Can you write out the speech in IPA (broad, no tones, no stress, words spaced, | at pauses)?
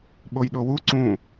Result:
ɓojɗowu ǀũ